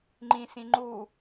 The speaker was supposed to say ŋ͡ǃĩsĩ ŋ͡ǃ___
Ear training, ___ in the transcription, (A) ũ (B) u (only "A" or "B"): B